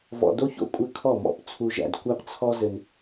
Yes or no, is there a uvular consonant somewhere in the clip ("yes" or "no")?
no